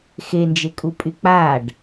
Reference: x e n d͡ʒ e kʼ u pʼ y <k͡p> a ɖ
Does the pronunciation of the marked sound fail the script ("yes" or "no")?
no